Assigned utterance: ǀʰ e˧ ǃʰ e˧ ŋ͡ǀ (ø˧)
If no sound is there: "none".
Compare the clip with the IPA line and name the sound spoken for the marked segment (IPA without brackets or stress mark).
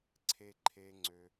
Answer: ø˧